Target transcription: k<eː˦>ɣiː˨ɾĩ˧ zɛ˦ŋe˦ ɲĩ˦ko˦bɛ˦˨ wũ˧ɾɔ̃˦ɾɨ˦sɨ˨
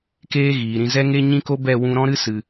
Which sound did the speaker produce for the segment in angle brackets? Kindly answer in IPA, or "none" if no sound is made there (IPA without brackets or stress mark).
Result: eː˦